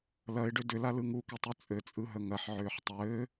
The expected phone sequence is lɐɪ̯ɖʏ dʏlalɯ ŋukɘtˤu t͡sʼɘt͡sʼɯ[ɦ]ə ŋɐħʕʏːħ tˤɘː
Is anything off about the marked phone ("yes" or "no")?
no